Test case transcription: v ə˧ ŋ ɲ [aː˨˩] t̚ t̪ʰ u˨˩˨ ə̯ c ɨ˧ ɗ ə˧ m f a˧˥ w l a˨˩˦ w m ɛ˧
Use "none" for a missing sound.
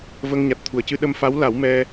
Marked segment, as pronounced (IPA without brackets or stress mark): a˨˩